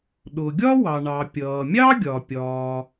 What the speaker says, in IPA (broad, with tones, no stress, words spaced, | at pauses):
ɗʊ˩ɡʲɒ˥wɑ˩ ɳɑ˩ pʲʌː˩mʲɑ˥ɡʲɒ˩ pʲɒː˩